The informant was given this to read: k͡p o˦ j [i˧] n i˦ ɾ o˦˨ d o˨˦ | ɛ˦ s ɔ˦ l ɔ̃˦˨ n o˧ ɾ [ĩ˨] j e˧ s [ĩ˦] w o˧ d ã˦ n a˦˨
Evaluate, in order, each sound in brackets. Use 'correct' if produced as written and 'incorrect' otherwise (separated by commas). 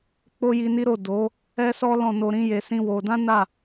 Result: correct, incorrect, correct